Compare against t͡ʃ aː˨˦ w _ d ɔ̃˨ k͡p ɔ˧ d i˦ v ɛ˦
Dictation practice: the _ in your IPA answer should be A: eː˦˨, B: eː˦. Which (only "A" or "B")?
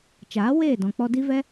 A